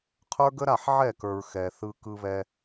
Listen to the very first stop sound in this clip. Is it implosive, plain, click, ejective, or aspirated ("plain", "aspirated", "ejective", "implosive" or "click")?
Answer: aspirated